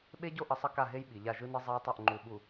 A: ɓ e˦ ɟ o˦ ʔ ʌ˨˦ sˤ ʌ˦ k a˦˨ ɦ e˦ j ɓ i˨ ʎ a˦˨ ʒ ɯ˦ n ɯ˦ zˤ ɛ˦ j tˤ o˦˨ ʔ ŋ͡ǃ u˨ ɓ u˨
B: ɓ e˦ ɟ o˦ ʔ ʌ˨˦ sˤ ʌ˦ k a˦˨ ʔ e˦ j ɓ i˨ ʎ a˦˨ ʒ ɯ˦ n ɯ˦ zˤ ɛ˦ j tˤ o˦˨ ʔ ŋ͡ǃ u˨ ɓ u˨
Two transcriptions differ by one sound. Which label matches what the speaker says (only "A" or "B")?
A